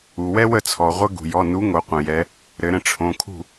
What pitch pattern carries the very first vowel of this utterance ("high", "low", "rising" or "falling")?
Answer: low